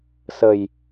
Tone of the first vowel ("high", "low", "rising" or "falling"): low